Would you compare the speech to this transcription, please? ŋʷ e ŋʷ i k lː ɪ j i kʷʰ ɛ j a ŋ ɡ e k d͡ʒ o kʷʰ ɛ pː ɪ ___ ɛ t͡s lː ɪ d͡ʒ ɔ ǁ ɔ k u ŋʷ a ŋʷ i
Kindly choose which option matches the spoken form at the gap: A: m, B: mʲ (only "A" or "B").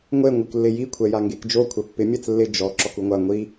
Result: B